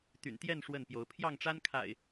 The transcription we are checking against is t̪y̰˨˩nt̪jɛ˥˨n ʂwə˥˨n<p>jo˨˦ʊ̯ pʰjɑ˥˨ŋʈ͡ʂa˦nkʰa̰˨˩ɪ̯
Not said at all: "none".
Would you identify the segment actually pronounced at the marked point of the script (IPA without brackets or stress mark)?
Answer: p